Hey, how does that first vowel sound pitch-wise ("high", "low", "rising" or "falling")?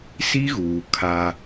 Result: high